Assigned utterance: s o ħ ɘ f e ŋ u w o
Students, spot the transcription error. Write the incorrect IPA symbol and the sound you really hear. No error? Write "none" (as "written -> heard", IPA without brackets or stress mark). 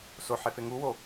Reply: ɘ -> e